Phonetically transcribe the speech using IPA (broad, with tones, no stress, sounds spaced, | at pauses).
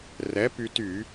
r ɛ˨˥ p y˧ t y˧˩˧